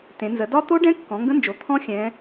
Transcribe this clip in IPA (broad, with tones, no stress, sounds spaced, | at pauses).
t ẽ˩˧ n z ə˩˧ d ɒ˦˥ t̪ o˦˥ ɖ ɛ̃˦˥ kː ɔ̃˩˧ ŋ ɡ ə̃˦˥ n d͡ʒ o˩˧ t̪ʰ ɔ̃˦˥ xʲ ɛ̃˩˧